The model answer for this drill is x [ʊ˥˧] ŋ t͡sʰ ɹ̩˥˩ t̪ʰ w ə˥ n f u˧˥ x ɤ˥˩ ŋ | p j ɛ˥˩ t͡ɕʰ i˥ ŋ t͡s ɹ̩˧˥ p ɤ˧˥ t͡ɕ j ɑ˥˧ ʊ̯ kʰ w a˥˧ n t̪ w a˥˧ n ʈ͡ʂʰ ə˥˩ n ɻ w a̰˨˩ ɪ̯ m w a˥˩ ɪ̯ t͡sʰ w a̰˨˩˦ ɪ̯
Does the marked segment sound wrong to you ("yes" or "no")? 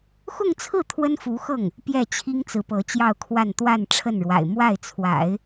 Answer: no